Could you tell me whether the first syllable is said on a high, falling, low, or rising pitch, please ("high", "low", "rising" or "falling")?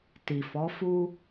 low